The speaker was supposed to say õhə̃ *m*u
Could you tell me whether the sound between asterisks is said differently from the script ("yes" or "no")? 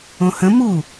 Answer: no